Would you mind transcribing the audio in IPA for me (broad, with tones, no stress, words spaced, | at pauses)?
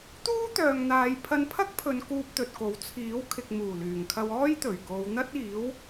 t̪uː˥t̪œː˨ŋn̪aː˨˧j pʰɐ˧npʰɐ˥k̚pʰɵ˨˧n kuː˧p̚t̪ɵ˨t̚ko˨˥w t͡sʰiː˨˥wkʰɪ˨k̚ muː˨˩lyː˨˩ŋkʰɐ˧w ɔː˥j t̪ɵ˨˩ɥko˨˧w n̪ɐ˥t̚iː˨˥w